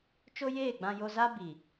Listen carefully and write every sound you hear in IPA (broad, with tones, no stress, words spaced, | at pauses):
t͡ʃo˦jeː˦˨ɡ͡bã˧ jo˧za˦bi˨